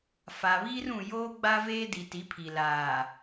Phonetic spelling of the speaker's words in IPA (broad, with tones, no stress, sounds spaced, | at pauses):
f a˨ β iː˦ r ũ˨ j oː˦ ɡ͡b a˦ v eː˦ d i˨ t i˨˦ pʰ i˨ l aː˨